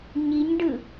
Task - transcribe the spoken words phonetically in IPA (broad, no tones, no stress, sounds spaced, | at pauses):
ɲ i ɲ ɖ ɯ